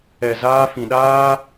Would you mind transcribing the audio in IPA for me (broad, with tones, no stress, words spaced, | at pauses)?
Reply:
ɛ˨zaː˧ fĩ˨ɗaː˦